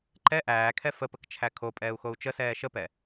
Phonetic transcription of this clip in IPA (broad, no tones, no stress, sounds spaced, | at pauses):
ǃ ɛ ʔ æː kʰ ɛ f ə p ə k t͡ʃʰ æ kʰ o pʼ ɛː u̯ x o u̯ t͡ʃ ə s ɛː ʃ ə p ɛ